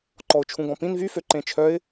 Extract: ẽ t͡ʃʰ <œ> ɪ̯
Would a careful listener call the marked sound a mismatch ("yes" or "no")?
no